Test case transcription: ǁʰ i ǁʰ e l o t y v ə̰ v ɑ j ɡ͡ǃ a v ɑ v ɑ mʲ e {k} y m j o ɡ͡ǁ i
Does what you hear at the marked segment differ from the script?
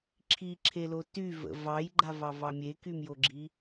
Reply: no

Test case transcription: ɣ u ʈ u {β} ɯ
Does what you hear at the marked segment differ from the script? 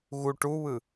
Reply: no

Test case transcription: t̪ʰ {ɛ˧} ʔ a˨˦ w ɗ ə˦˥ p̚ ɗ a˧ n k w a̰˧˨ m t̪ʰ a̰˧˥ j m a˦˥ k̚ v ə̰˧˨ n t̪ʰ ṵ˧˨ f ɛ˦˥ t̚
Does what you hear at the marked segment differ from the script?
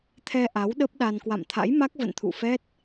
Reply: no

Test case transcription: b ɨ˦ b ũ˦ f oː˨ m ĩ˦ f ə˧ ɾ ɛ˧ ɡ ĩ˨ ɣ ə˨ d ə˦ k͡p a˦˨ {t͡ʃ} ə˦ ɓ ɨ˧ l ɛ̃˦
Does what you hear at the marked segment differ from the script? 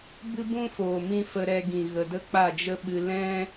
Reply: yes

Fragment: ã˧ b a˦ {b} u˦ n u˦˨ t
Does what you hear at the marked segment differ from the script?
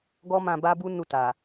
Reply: no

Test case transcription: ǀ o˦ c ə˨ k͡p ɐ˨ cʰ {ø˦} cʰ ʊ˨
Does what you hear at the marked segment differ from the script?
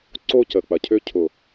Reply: no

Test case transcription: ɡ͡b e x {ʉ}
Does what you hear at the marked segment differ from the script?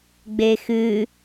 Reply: no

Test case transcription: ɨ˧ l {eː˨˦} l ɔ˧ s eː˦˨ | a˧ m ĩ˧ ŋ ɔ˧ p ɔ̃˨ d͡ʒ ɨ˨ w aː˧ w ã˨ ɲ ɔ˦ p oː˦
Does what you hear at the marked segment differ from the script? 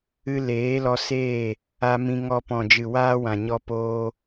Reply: no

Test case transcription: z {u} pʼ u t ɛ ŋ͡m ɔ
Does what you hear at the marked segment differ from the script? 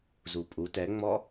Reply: no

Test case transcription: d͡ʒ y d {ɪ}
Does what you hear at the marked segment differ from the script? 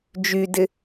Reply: no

